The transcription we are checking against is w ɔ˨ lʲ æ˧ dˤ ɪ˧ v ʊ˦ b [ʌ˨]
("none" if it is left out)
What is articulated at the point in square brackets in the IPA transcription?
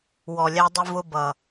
ʌ˨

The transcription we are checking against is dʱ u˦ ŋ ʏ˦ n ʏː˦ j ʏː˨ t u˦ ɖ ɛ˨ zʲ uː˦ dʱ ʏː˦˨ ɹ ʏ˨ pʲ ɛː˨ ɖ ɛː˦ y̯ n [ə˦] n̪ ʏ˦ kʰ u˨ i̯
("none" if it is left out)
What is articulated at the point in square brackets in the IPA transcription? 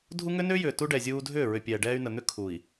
ə˨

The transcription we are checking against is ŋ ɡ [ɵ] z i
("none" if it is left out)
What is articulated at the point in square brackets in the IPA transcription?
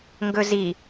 ɵ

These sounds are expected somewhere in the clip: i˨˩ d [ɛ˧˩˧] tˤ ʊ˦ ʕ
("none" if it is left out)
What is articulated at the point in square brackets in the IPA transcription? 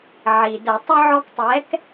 ə˧˩˧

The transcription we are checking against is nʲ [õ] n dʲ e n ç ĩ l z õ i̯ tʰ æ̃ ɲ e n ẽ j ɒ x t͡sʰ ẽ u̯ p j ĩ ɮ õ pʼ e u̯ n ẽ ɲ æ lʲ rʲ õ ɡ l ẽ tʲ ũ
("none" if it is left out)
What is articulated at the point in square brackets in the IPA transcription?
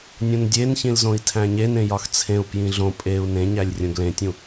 õ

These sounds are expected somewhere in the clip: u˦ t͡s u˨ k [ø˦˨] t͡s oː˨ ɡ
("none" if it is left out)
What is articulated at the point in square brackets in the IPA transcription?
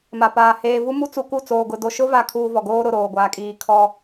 u˦˨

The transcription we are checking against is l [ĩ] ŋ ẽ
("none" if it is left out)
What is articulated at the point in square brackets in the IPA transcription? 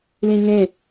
ĩ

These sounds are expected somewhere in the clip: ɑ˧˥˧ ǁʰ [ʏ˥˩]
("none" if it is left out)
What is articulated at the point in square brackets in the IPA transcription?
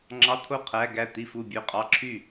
y˥˩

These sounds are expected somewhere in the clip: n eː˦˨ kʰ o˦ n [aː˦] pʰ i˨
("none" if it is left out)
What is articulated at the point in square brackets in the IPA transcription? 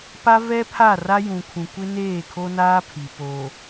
aː˦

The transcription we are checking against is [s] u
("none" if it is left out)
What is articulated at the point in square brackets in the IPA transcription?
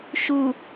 ʃ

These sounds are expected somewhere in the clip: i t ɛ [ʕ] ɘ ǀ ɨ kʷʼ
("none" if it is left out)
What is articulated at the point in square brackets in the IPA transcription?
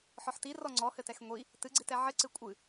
ʕ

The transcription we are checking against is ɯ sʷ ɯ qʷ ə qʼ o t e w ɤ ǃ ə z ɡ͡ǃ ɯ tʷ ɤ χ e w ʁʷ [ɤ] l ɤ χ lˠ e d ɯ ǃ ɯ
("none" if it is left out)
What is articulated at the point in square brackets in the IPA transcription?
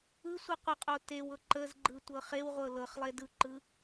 ɤ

